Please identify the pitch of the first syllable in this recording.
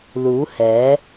rising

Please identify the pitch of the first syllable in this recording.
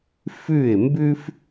falling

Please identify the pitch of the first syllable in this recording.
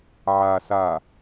low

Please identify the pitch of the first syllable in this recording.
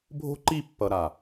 high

